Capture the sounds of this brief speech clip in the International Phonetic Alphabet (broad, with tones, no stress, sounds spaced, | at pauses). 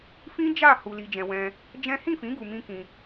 f ĩ˦ d͡ʒ a˦˨ h u˧ l i˧ d͡ʒ ɛ̃˧ w ɛ̃˧ | d͡ʒ ɛ̃˦ h ĩ˦˨ f ĩ˨˦ ɡ u˧ m ĩ˦ k ĩ˧